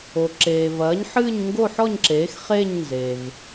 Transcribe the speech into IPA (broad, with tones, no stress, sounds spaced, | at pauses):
o˩ ǁ eː˩ v ɐː˩˥ ɲ ħ ɨː˥˧ ɲ ŋ ɡ o˥˧ ħ ɔ˥˧ ɲ ǁ eː˩˥ x χ eː˥˧ ɲ n z e˩ v